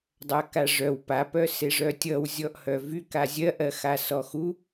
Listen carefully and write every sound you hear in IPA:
dˤ a k a ʐ œ w p a p œ s e ʐ œ tʲ ʌ w zʲ ɔ ʔ h œ v y k a zʲ ɜ ʔ ɜ x a s ɔ x u

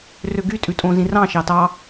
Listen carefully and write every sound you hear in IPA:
r ø ɡ y tʼ ʉ tʼ õ z ĩ r ɑ̃ ʃ ɑ t ɑ

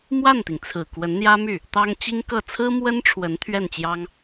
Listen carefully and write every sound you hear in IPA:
m w a˥˩ n t̪ i˩ ŋ t͡sʰ ɹ̩˨˩ k w ə˧˥ n n̪ j ä˥ m y˥˩ | t̪ ɑ˥ ŋ t͡ɕ i˥ ŋ k ɤ˥˩ t͡sʰ ɹ̩˥ m w ə˥ n ʈ͡ʂʰ w ə˧˥ n t̪ʰ ɥ ɛ˥˩ n t͡ɕ j ɑ˥ ŋ

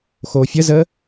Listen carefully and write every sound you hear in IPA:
x oː fʲ ə z əː

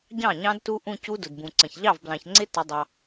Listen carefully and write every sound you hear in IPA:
ɟ ɑ̃˥˩ ɲ ɑ̃˦˥ d t u˦˥ ʔ ũ˥˧ c u˦˥ d ʊ˩ d b ũ˩ ǀ ə̃˩ ç ʎ ɑ˥˩ v b l ɑ̃˩ ç ŋ͡ǀ ɪ˦˥ t ə˩˧ dˤ ɑ˩

